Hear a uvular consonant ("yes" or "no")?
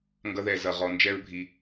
yes